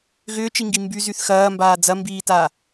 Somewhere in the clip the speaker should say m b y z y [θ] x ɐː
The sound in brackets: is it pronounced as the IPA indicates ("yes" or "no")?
yes